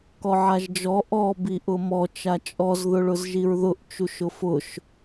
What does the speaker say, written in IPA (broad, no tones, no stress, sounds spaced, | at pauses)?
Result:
k ɔ ʕ a ʒ d͡ʒ ɔ ʔ ɔ b i ʔ ʊ m ɔ t͡ʃ a t͡ʃʼ ɔ z ð ʊ ɭ ʊ z ʒ i ɹ ð ʊ ʔ t͡ʃ u ʃ ʊ f ʊ ʃ